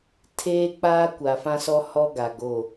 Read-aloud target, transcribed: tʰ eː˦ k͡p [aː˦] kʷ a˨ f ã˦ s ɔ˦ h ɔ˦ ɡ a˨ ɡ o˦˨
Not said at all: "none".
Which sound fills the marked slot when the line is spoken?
aː˦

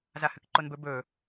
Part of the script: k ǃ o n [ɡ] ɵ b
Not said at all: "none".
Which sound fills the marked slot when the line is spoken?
b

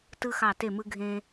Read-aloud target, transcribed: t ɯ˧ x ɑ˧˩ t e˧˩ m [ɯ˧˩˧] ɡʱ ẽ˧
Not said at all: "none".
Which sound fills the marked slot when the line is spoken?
ɯ˧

